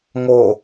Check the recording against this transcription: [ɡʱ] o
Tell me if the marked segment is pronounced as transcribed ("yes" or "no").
no